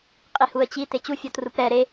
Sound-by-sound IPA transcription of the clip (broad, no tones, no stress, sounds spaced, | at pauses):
qʼ i h u ə̯ t͡ɕ i t e t͡ɕ u fʲ ɔ t r u p ɾ ɛ ɾ e